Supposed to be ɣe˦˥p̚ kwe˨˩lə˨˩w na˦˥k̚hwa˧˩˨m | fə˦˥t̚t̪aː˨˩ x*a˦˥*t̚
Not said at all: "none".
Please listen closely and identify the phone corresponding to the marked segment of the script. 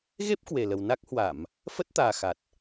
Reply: a˨˩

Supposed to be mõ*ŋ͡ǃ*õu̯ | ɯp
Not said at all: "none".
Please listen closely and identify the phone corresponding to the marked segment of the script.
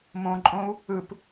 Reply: ǃʼ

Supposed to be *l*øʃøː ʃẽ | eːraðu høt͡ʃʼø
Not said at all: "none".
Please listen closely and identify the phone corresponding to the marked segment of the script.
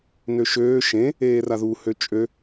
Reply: n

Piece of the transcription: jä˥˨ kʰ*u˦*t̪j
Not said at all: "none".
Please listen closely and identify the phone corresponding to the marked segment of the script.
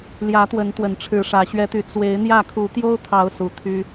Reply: u˨˦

